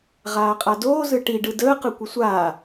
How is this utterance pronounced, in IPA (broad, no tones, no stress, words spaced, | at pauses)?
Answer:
ʁaːqʼadoː zɯʈi ɖɯdəː qɯkʷəsʷaː